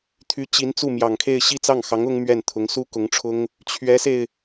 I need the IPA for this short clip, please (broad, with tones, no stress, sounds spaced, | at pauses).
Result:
t̪ʰ y˧˥ t͡ɕ i˧˥ n t͡s u˥˩ m j ɑ˨˩ ŋ kʰ e˥˧ ɪ̯ ɕ i˥˧ t͡s ɑ˥˩ ŋ x ɑ˧˥ ŋ ʊ˥ ŋ m ɥ ɛ˥˩ n t̪ʰ ʊ˧˥ ŋ s u˥ k ʊ˧˥ ŋ ʈ͡ʂʰ ʊ˥ ŋ | t͡ɕʰ ɥ ɛ˧˥ s e˧ ɪ̯